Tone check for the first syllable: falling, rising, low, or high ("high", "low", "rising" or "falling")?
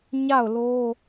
falling